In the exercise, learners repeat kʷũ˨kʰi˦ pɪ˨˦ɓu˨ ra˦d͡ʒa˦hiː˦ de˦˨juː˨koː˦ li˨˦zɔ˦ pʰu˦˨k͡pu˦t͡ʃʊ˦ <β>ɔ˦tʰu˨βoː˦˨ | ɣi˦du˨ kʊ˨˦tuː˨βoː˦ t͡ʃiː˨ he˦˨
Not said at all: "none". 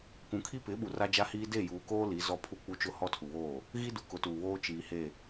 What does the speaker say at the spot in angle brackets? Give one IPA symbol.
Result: h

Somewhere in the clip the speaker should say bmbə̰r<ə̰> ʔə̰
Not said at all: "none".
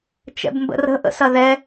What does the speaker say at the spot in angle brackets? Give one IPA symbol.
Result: ə̤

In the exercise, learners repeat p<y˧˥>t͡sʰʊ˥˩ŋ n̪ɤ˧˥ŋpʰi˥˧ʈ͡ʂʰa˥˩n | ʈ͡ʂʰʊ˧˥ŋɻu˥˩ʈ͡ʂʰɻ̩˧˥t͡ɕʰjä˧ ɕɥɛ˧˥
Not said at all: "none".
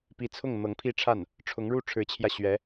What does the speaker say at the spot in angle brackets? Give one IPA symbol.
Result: i˧˥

